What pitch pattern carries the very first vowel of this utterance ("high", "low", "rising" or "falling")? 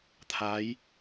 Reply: rising